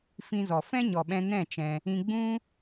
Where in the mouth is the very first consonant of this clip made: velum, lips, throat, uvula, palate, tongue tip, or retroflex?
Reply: lips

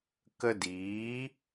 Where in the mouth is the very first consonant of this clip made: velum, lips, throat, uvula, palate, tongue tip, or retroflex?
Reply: velum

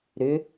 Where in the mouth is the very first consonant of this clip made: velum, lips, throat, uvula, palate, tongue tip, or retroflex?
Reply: tongue tip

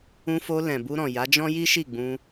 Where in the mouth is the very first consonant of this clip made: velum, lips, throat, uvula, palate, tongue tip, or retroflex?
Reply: lips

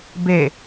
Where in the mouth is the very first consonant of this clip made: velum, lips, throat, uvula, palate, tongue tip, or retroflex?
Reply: lips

